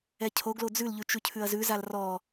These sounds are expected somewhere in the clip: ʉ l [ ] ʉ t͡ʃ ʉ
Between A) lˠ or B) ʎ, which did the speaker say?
B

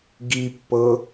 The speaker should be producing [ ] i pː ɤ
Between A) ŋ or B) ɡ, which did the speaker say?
B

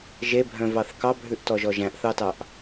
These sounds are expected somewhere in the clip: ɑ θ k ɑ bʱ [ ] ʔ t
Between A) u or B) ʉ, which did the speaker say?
B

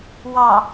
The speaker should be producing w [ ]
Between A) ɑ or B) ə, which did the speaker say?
A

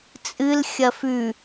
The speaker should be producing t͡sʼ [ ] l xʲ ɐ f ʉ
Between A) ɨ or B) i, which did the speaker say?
A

